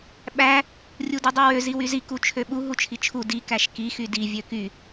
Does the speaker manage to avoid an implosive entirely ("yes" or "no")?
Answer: no